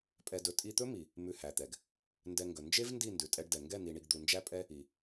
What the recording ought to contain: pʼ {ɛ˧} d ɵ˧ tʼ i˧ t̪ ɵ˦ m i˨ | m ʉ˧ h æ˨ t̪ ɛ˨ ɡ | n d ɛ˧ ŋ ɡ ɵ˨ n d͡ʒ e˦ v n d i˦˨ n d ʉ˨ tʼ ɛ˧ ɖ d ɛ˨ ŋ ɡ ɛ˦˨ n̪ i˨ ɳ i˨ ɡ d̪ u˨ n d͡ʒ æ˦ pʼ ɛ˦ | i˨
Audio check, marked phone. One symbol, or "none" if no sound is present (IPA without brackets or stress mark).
ɛ˧